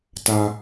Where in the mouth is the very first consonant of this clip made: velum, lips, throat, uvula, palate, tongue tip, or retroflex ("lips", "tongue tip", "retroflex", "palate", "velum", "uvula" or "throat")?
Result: tongue tip